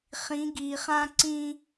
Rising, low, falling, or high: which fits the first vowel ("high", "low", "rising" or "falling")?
rising